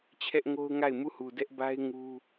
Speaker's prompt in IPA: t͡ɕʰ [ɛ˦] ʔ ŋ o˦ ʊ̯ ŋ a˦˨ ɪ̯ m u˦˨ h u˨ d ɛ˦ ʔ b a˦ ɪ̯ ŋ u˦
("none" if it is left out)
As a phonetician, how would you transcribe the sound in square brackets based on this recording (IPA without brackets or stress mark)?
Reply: ɛ˦